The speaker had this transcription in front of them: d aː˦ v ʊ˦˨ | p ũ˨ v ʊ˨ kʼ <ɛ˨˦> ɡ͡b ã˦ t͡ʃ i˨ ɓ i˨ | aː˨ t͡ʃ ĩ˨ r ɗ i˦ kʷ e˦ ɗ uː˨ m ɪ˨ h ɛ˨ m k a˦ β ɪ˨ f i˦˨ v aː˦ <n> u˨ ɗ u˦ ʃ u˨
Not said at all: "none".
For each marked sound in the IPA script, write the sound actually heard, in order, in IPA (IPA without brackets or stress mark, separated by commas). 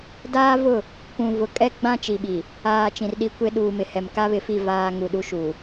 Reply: ɛ˦, ŋ